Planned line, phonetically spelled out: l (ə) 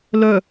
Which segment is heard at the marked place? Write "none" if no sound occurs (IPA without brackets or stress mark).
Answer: œ